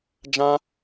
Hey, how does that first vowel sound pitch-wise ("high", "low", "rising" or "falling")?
high